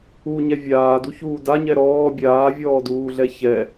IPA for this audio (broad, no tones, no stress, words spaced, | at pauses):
uɲɛ vʲaːduçuː daɲɛ ɾɔː bʲaːvʲɔːduːɮɛ çɛ